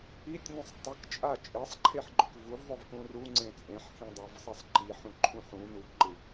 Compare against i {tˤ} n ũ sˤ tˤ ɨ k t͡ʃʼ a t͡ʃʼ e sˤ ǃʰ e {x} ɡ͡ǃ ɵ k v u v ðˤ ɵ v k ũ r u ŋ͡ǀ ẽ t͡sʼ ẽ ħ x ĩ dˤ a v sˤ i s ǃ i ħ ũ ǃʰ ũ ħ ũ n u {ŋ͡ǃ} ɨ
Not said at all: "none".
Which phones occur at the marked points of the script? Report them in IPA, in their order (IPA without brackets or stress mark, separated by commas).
tʲ, ħ, ǃ